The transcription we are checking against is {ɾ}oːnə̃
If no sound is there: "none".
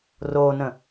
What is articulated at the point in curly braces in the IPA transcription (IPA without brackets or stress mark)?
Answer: r